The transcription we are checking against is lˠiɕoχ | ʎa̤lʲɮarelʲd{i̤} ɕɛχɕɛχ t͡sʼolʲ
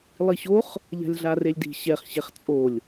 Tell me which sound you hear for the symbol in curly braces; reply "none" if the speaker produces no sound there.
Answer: i̤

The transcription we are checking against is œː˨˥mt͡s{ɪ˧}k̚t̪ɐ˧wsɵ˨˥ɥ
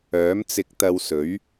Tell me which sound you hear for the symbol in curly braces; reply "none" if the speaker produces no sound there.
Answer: ɪ˧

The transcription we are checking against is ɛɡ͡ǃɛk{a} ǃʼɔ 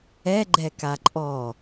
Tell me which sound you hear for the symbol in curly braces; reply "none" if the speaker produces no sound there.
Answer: a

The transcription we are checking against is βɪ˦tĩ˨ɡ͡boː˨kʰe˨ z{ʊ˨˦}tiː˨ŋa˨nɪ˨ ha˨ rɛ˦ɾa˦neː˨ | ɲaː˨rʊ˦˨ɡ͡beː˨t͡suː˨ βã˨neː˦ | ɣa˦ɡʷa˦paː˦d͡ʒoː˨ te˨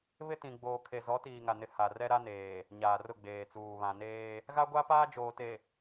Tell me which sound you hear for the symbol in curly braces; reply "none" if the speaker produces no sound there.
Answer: ɔ˨˦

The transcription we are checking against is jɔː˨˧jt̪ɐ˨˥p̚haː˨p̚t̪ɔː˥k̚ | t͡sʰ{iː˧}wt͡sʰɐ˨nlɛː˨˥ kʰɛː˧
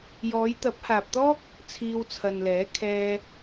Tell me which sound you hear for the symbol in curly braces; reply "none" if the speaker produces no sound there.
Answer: iː˧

